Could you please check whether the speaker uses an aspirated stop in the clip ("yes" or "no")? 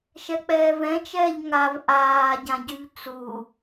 no